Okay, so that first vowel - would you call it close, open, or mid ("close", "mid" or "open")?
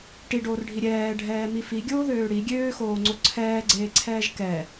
close